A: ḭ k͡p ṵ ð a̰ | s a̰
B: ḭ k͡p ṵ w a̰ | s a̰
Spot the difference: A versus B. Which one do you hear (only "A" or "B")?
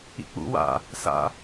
B